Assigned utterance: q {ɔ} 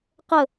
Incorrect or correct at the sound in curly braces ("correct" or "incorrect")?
incorrect